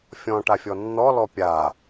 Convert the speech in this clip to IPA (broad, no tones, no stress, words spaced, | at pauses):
fʲɔ̃ʈafʲɔ nːɔlɔ pʲa